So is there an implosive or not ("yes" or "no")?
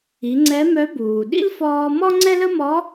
yes